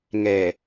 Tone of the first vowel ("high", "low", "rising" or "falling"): low